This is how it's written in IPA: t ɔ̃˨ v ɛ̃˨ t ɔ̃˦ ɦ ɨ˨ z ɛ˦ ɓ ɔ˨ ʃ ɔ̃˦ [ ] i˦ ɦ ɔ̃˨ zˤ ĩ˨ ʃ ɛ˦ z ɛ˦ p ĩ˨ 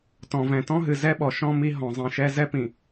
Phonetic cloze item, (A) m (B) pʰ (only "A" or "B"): A